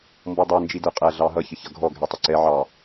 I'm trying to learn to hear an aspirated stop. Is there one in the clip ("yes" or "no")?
no